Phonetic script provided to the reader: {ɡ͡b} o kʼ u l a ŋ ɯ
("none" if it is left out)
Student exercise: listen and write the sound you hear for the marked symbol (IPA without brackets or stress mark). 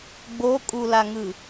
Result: ɡ͡b